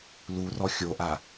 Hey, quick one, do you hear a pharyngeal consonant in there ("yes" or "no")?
no